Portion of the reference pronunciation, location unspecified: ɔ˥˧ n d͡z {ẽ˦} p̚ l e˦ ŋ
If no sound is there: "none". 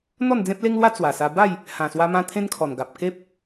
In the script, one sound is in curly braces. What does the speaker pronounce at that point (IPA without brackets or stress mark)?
ẽ˦